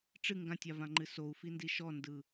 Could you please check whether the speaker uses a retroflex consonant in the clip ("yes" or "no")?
yes